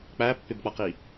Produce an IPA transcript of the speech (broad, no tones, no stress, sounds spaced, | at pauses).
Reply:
k͡p æ pː ɪ b k͡p ʌ q i